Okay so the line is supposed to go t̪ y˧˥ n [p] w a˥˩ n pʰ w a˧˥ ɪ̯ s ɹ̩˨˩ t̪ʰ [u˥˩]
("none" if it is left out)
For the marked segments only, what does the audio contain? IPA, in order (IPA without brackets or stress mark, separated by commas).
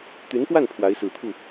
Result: p, u˥˩